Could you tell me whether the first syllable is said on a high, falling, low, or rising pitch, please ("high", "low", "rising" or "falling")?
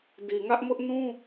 low